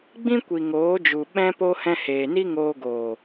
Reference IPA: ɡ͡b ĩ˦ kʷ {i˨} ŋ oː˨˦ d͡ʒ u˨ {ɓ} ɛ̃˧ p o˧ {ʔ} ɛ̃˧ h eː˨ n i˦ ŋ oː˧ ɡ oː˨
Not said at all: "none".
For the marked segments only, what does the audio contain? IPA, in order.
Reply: i˨, ɓ, h

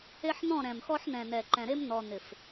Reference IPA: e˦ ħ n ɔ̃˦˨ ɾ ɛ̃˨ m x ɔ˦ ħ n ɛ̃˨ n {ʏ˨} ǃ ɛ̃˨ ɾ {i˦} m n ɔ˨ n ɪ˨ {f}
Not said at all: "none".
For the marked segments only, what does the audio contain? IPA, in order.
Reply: ɛ˨, e˦, f

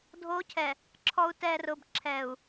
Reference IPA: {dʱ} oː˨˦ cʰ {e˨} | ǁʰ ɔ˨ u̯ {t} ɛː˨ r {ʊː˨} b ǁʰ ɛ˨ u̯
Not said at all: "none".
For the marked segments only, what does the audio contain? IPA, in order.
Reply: dʱ, ɛ˨, t, ʊː˨

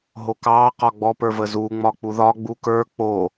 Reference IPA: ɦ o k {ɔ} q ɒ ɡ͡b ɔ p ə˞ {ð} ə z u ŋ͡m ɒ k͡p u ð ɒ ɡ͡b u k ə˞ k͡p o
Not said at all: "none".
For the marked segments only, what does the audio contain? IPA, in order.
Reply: ɑ, v

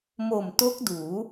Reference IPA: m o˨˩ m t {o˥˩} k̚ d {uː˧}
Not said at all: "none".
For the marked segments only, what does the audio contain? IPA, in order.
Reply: o˦˥, uː˩˦

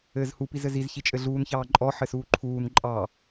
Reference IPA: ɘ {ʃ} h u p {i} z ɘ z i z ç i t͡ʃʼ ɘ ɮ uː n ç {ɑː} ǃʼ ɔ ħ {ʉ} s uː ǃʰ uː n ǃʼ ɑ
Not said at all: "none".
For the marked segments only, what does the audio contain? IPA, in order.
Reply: z, i, ɑː, ɘ

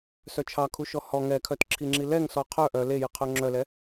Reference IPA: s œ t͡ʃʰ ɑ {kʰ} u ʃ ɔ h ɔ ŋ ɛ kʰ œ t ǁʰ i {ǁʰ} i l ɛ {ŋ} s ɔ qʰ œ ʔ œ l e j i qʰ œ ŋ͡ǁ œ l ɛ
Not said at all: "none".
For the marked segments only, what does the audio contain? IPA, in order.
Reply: kʰ, ŋ͡ǁ, ŋ

